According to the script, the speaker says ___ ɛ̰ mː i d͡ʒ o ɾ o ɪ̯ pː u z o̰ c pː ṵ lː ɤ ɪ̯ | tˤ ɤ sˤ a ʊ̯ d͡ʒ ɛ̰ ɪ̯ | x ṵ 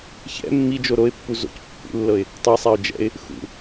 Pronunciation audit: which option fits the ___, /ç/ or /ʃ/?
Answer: ç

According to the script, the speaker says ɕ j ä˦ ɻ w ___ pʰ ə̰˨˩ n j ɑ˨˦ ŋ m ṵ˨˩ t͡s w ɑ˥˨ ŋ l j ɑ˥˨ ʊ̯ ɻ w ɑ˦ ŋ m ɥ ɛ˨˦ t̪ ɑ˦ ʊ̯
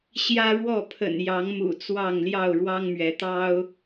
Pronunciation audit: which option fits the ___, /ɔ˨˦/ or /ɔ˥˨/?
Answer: ɔ˥˨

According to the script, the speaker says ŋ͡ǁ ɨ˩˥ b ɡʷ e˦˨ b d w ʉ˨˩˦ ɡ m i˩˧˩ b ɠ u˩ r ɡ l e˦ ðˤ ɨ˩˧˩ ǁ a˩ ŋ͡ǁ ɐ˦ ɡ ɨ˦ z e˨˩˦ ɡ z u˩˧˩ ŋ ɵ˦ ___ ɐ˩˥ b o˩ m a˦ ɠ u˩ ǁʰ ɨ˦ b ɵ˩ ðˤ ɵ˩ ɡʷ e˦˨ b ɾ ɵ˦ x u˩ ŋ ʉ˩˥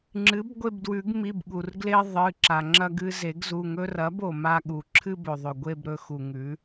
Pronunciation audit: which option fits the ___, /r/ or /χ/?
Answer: r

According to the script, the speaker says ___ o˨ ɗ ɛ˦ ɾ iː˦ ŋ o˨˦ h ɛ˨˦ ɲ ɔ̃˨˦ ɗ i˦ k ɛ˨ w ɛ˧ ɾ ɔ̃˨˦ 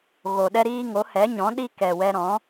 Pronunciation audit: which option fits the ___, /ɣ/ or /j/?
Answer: ɣ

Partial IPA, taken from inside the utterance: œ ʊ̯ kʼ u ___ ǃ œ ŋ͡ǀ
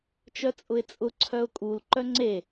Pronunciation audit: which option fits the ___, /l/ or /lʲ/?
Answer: l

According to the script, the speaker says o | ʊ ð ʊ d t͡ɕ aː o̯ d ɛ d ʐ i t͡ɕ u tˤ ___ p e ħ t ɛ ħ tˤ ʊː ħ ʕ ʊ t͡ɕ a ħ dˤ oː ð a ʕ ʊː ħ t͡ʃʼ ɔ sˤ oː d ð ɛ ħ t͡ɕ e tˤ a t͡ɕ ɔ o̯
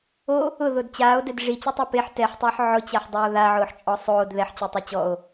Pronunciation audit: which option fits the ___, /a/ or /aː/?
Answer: a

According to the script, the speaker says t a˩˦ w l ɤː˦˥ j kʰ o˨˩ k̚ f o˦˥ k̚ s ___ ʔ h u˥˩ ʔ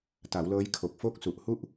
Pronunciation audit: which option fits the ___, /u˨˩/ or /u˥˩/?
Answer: u˨˩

